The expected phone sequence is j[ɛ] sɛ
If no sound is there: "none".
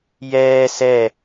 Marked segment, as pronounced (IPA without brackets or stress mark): ɛː